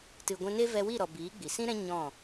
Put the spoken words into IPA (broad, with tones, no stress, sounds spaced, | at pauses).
t ɨ˨ ɡʷ ɛ̃˧ n e˦ v ɛ˧ w i˦˨ ɾ ɔ˨ b iː˨˦ ɡ͡b i˨ s ĩ˦ ɾ ɛ̃˦ ɲ ɔ̃˦˨